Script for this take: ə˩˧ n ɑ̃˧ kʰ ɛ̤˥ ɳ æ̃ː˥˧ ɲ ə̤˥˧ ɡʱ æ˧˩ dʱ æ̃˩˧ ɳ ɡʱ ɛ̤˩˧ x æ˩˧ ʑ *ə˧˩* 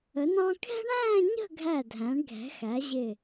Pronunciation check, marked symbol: incorrect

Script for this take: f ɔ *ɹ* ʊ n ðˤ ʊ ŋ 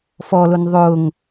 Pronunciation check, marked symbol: incorrect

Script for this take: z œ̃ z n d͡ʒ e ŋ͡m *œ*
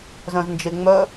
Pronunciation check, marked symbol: correct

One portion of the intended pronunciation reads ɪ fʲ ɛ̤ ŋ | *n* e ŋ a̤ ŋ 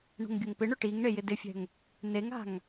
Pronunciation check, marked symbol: correct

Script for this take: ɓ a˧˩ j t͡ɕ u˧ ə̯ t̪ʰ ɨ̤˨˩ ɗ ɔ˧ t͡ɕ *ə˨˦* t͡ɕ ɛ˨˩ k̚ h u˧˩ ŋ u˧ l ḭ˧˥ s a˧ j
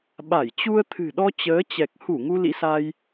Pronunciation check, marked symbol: incorrect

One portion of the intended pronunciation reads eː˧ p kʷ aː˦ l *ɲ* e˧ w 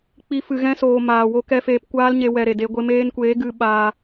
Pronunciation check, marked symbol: correct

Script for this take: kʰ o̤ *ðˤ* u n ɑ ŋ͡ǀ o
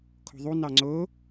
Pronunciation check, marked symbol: correct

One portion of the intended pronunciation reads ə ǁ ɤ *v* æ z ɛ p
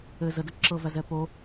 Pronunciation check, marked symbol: correct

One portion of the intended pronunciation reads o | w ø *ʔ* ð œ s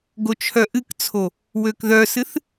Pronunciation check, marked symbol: incorrect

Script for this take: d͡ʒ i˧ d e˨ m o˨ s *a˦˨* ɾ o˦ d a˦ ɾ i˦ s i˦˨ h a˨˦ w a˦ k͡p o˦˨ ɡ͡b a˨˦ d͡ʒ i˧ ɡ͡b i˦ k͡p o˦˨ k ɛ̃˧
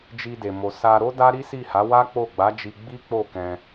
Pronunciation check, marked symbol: incorrect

